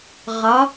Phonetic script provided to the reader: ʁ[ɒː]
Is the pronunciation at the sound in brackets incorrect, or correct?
incorrect: ɒ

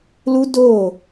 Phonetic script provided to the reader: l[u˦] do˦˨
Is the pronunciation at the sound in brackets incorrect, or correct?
correct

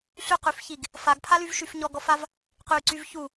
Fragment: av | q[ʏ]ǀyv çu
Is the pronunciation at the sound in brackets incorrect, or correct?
incorrect: y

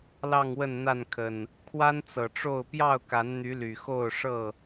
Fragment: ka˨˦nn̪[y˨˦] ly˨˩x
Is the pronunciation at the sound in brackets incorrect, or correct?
correct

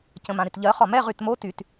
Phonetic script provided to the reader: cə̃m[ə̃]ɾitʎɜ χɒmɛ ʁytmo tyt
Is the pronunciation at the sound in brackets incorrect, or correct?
incorrect: ã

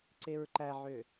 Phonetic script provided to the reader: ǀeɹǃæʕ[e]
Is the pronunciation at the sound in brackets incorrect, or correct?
incorrect: ø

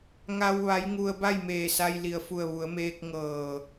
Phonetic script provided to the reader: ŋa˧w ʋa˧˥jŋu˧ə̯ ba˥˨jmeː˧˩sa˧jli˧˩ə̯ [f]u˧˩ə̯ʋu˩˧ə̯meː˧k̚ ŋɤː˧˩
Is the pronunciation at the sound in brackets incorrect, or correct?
correct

